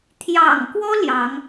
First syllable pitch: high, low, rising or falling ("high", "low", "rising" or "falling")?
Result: low